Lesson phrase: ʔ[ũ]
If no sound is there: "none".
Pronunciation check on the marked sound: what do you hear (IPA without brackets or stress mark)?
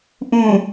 ũ